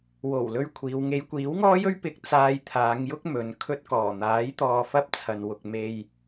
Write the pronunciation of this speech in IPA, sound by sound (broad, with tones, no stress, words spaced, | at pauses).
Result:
wo˨˩w lɵ˥ɥkʷʰiː˨˧w ŋe˨˧jkʷiː˨˥wŋɔː˥jɵ˥ɥ pɪ˨k̚ t͡saː˧jt̪ʰaː˨˧ŋjʊ˥k̚ mɵ˨˧n kʰɵ˧t̚kɔː˨˩n̪aː˨˥j t̪ɔː˧fɐ˥p̚ t͡sʰɐ˨nwʊ˨k̚ me˧j